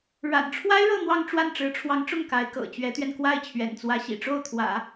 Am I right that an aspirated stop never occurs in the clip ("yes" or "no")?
no